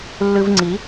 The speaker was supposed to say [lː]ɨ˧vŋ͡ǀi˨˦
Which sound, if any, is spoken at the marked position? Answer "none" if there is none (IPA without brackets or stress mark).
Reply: lː